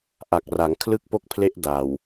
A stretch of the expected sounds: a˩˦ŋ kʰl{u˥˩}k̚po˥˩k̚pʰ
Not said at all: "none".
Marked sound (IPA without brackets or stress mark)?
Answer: ɯ˥˩